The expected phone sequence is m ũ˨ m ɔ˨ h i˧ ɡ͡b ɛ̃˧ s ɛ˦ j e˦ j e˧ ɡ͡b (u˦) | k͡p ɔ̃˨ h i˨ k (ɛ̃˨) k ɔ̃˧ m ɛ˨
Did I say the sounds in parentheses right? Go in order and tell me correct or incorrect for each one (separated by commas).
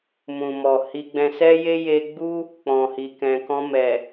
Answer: correct, correct